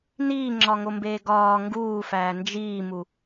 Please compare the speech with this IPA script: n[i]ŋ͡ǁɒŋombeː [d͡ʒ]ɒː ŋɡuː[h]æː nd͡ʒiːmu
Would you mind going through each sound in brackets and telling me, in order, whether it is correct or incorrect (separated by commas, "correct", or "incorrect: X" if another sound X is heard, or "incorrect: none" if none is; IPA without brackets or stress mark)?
incorrect: iː, incorrect: ɡ, incorrect: f